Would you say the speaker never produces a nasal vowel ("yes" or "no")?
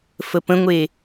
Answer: no